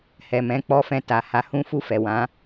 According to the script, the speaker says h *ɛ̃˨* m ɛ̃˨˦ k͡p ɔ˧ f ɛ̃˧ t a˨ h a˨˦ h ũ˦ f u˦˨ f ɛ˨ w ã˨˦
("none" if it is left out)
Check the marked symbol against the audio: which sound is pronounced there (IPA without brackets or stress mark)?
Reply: ɛ˨